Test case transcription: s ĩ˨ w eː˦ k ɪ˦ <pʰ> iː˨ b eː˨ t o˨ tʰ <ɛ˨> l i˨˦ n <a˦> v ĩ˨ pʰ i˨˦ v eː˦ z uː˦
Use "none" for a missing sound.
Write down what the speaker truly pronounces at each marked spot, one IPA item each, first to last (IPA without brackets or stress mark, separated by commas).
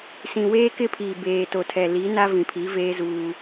pʰ, ɛ˨, a˦